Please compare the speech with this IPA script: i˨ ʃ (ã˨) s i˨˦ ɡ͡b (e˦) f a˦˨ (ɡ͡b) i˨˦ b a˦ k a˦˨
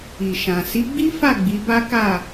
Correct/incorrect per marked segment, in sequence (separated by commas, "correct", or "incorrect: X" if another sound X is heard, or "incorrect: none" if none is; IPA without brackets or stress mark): correct, incorrect: i˦, correct